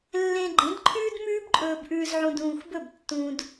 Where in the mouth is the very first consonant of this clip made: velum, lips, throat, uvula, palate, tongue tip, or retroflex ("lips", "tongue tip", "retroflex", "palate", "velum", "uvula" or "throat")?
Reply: tongue tip